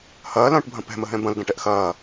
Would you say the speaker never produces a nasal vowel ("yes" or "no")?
no